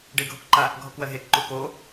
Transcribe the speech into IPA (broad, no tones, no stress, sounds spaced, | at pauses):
ɖ e ɡʱ o k ǃ a | ɡʱ ɔ k w ɜ ɦ e k ǃ u k o